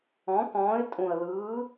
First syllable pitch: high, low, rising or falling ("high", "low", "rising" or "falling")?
rising